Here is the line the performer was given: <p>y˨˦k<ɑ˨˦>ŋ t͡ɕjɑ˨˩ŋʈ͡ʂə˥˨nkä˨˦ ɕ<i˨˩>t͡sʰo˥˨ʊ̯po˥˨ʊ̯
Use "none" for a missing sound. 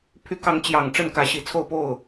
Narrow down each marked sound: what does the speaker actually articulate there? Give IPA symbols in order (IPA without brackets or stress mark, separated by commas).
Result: pʰ, ɑ˨˦, i˨˩